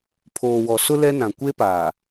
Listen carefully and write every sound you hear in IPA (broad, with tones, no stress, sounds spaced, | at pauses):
pʰ oː˨ w ɔ˨ s ʊ˦ l ɛ˦ n ã˨ kʷ e˦ p aː˨